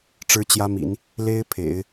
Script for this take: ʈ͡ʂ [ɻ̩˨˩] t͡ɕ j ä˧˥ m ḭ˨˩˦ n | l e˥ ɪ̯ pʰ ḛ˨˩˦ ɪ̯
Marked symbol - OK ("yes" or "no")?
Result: no